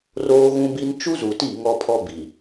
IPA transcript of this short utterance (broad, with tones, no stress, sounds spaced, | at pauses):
r oː˦ ɣ ũ˦ b i˦ n t͡ʃ u˦ z u˨ t i˦˨ ŋ ɔ˦ pʰ ɔ˦ b i˨